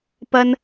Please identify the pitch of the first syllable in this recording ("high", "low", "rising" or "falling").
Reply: high